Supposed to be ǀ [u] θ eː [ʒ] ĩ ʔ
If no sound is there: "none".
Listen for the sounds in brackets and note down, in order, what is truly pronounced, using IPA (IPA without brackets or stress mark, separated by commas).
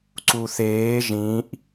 u, ʒ